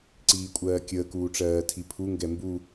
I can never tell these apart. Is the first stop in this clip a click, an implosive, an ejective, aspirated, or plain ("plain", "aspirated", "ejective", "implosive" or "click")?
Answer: click